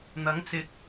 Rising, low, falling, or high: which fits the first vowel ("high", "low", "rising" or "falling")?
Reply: rising